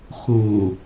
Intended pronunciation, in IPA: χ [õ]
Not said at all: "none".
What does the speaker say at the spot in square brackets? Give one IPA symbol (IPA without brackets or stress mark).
õ